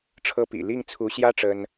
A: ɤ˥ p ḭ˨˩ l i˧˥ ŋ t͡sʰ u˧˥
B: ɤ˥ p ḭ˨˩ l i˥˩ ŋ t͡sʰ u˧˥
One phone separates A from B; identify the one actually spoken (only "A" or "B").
B